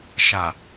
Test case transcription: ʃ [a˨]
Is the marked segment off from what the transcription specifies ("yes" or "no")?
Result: no